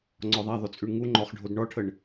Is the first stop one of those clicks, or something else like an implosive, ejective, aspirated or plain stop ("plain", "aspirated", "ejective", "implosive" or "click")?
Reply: click